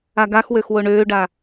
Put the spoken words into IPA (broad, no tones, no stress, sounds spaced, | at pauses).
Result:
a ɡ a x w ø x w o ɳ øː ɖ a